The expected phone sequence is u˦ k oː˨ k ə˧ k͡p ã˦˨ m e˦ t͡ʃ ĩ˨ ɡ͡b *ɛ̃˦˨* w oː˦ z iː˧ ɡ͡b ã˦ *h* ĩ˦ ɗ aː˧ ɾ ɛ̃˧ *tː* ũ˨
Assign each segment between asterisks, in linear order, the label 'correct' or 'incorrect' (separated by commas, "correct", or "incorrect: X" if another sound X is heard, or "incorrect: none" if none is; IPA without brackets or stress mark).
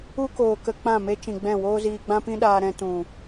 correct, incorrect: p, incorrect: t